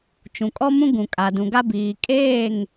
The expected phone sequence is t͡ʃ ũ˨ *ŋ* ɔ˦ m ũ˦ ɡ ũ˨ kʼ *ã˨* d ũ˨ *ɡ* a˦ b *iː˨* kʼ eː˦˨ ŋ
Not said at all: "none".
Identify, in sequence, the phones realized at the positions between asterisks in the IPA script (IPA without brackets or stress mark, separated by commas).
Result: kʼ, a˨, ɡ, iː˨